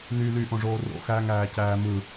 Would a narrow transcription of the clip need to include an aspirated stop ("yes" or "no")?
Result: no